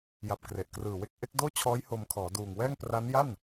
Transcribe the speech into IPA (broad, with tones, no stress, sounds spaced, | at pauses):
j a˨˩ p̚ k r e˨˩ ʔ k r ɯː˨˩ w e˥˩ k̚ ʔ e˦˥ k̚ d oː˥˩ t͡ɕʰ ɔː˦˥ j h o˧ m kʰ ɔː˩˦ d uː˨˩ ŋ w ɛː˥˩ ŋ p r a˦˥ n j a˥˩ n